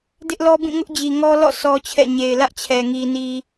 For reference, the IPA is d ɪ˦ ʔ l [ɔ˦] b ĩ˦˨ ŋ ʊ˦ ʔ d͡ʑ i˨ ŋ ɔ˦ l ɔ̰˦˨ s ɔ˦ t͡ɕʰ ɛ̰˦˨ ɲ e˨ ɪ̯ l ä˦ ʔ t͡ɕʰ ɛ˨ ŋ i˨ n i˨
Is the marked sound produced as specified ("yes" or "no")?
yes